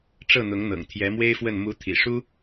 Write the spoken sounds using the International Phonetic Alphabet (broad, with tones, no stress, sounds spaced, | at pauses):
ʈ͡ʂ ɤ˥˩ n̪ ʊ˧˥ ŋ n̪ ɤ̰˨˩ ŋ t̪ʰ j ɛ˧˥ m w e˥ ɪ̯ f w ə˥˩ n m u˧˥ t̪ʰ ḭ˨˩ ʂ u˥